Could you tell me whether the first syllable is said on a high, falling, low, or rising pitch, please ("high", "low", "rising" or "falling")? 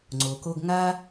low